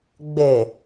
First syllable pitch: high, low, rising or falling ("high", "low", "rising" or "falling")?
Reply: low